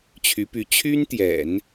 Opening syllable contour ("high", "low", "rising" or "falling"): rising